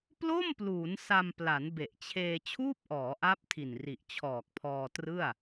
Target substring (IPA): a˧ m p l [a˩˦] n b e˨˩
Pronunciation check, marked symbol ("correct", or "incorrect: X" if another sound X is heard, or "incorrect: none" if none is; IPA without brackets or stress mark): correct